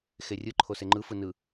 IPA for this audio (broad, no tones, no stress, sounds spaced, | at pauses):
x e rʲ ɯ ǃʰ o s e ŋ͡ǃ ɯ f ɯ n ɯ